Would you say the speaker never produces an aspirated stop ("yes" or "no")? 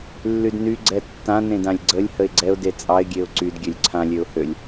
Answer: no